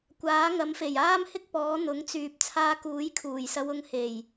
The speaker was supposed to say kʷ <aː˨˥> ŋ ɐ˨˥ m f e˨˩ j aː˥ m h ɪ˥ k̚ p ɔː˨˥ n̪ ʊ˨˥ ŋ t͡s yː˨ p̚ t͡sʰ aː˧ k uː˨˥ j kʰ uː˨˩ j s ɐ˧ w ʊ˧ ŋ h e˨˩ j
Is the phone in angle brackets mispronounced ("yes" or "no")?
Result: no